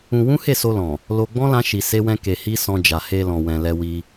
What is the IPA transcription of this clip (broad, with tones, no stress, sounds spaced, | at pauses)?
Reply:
ũ˧ w ũ˦ h e˦˨ s o˧ l ɔ̃˨ | l o˧ ɡ͡b ɔ̃˦ l ã˦ ʃ i˧ s e˦ w ɛ̃˦ k e˧ h i˦ s ɔ̃˧ d͡ʒ a˨ h e˧ l ɔ̃˨ w ɛ̃˨ l ɛ˧ w i˧